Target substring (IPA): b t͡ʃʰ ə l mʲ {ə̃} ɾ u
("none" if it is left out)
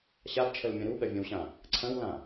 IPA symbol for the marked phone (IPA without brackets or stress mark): ɐ̃